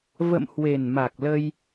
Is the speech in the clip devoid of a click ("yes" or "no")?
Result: yes